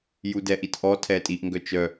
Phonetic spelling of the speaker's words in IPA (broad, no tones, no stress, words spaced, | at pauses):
judɛʔitʔɔ tʰɛtʼiʔ ŋɡœt͡ʃœ